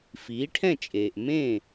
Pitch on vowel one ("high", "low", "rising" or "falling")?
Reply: rising